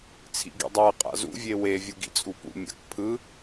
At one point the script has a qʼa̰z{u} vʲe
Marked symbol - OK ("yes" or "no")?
no